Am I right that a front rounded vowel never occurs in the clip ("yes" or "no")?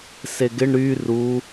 no